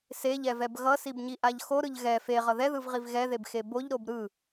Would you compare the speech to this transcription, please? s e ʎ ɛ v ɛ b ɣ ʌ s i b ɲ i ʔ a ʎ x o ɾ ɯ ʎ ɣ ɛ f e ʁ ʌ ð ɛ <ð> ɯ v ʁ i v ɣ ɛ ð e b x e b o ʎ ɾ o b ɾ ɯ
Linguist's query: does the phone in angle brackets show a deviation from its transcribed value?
no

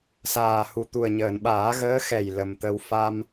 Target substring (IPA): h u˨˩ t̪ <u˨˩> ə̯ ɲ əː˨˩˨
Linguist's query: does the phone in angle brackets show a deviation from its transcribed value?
no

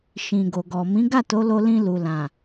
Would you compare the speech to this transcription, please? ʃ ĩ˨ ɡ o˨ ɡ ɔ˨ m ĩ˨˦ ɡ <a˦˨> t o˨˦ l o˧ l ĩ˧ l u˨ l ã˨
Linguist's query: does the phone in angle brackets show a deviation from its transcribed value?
no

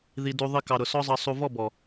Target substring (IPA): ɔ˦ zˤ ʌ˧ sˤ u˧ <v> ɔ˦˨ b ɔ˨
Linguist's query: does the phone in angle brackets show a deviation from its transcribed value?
no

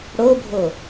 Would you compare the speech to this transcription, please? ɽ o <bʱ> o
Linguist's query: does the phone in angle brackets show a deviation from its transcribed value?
no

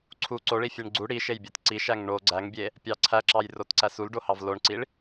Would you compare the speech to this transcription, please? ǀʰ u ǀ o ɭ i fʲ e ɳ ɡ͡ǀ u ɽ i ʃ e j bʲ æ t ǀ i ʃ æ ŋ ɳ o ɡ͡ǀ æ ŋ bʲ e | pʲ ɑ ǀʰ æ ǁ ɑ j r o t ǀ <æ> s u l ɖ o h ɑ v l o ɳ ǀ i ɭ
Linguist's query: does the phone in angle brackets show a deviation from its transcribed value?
no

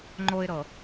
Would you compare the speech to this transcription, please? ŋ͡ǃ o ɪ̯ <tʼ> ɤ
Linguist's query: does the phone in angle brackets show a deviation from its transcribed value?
yes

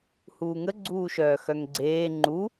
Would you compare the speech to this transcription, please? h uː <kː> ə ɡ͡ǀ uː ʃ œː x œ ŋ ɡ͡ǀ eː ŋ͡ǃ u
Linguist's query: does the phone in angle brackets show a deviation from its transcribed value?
yes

